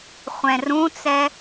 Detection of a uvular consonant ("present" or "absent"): present